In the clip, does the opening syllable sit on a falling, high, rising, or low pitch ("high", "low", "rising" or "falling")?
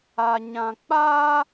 low